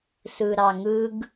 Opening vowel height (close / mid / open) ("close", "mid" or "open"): close